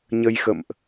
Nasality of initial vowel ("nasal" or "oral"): oral